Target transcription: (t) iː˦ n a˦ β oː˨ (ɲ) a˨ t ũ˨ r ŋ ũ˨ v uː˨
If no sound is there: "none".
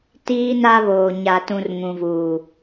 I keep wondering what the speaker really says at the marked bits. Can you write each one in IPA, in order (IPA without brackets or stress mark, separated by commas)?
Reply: t, ɲ